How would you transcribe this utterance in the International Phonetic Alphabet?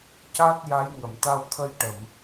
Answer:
c a˦˥ t̚ j a˧˥ j ŋ ə˨˩˨ m t̪ a˧ w t̪ʰ ə˧ j ʈ ə˨˩˨ m

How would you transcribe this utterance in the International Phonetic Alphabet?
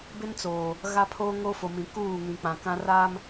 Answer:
b ɪ˦ n t͡s oː˨ | ɣ a˦ pʰ oː˦ ŋ o˦ f o˨ m ĩ˨ k uː˦˨ ŋ ĩ˨ k͡p ã˨ k ã˦ r aː˦ m

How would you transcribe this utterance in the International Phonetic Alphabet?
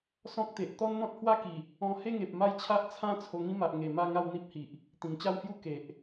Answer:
s ɔ̃˦ k̚ t̪ e˨ ʔ t̪ ɔ˦ n n̪ ɔ̃˦ t̚ h w a˦ k i˨˩ | ɔ̃˧ h e˥˧ ŋ e˨ p̚ m a˥˧ j t͡ɕʰ a˦ ʔ t͡sʰ ã˥˧ t͡sʰ o˧ ŋ ĩ˦ m a˨ ʔ ŋ e˨˩ m a˥˧ ŋ a˥˧ w n̪ i˦ p̚ h i˨ ʔ | t̪ ĩ˨˩ ŋ t͡ɕ a˥˧ w h j u˦ k e˨ ʔ

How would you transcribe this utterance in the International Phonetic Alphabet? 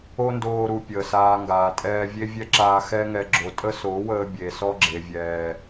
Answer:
o˦ n d oː˧ ɾ u˨ pʲ əː˨ s aː˧ ŋ ɡ aː˨ tʼ ɛː˧ vʲ e˦ vʲ ɛ˦ ǁ aː˧ x ɛ˦ ŋ ɛ˧ ɡ͡ǁ o˨ tʼ ə˦ s o˨˦ w əː˧ bʲ e˨ s ɔ˦ ɡ͡ǁ e˨ vʲ ɛː˨

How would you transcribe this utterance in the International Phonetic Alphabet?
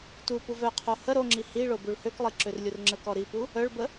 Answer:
t u p u v œ qʰ o h ə ɾ o ŋ͡ǁ i h i ɭ o b u ɭ h ø k lˠ i ǁ ø r lʲ u r ŋ͡ǁ ə k ɔ ɾ i p u | œ ɭ b ə

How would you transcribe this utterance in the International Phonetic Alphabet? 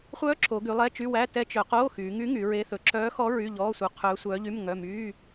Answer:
χʷ œː˧˥ ǁ o˩˧ ɡ y˩˧ lˠ ɛ˧˥˧ t͡ʃ y˧˥˧ w æ˧˥˧ t ɛ˧˥ t͡ʃ œ˩˧ q oː˧˥˧ x yː˩˧ ŋ y˧˥ ŋ y˩˧ ɹ e˧˥ θ ɵ˩˧ ǁ œː˧˥ x ɔ˧˥ ɹ y˧˥˧ ʎ ɔː˧˥˧ sʷ œ˧˥ qʰ œː˧˥ sʷ œː˧˥ ʎ y˧˥˧ m ŋ œ˧˥˧ m yː˧˥˧

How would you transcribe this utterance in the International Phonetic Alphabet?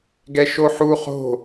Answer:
ɡ ɛ ʃ o ħ u χ o̤

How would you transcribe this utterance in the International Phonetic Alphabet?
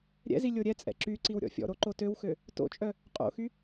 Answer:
ɾʲ ɛ̰ z i lʲ o ɾʲ ɛ t͡sʼ ɛ̰ ǁ y ǀ i w ɾʲ ɔ̰ fʲ ɔ̰ ɾ o ǃ o t ø w x ø | t o̰ t͡ʃʼ œ | qʼ o̰ x y

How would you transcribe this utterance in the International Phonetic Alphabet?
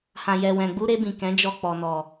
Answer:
h ã˨ j ɛ˨ w ɛ̃˨ ɡ͡b u˧ ɾ e˧ b ĩ˨ k ɛ̃˨˦ d͡ʒ ɔ˧ k͡p ɔ˨ n ɔ˨

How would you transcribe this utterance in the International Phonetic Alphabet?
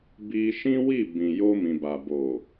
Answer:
b i˧ ʃ ĩ˦ w i˦˨ b ĩ˨ j o˧ m ĩ˨ b a˨ b o˨

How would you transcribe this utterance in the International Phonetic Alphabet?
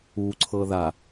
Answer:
u ǀʰ ɤ ð a

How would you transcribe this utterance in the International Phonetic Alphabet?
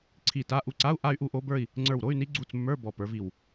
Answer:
ǀʰ i˧˩ t a˧˥˧ ʔ u˧˩ ǀ a˧˥˧ u̯ ʔ a˥˧ y̯ ʔ u˥˧ ʔ o˧˥ b ə˞˥˧ i̯ | ŋ͡ǀ ə˞˧˩ w ɾ o˧˥˧ y̯ n i˧˥ ɡ͡ǀ u˧˩ t͡s mː ə˞˧˥˧ b ɔ˧˩ p ə˞˧˥ v i˧˩ w

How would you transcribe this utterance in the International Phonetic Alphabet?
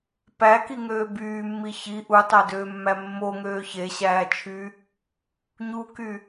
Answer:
p æ k i ŋ øː b yː mː i ç i ʔ u tˤ æ d øː mː æ mː o ŋ øː ç e ɕ æː t͡ʃʰ yː | ɲ u k y

